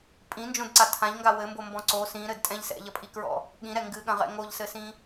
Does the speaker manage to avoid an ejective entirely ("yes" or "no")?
no